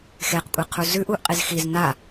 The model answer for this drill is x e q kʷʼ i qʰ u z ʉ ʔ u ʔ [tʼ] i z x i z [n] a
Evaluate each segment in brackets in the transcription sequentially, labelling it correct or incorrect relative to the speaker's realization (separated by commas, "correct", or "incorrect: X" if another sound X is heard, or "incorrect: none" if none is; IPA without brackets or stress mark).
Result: incorrect: qʼ, correct